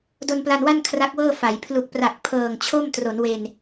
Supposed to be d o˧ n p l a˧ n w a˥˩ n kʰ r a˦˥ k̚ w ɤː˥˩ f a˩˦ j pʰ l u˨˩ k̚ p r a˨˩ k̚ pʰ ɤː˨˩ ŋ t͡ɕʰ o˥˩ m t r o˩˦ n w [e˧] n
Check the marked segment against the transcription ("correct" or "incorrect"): correct